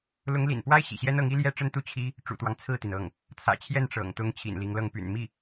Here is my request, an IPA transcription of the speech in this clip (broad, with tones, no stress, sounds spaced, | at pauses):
l ʊ˧˥ ŋ l ḭ˨˩ n p w a˥ ɪ̯ ɕ ḭ˨˩ ɕ j ɛ˥ n ɤ˧˥ ŋ i˥ l j ɛ˥ ʈ͡ʂ ə˥ n t̪ u˥˩ t͡ɕʰ i˥ | ʈ͡ʂ ṵ˨˩ t̪ w ɑ˦ ŋ t͡sʰ ɹ̩˥˩ t̪ i˩ n ɤ˥˩ ŋ | t͡sʰ ä̰˨˩ t͡ɕʰ j ɛ˥˩ n ʈ͡ʂ ɤ̰˨˩ ŋ t̪ ʊ˥ ŋ t͡ɕʰ ḭ˨˩ n l i˧˥ ŋ l ɤ˥˩ ŋ p y̰˨˩ n m i˥˩